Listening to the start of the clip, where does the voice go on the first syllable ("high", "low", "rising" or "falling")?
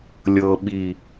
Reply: low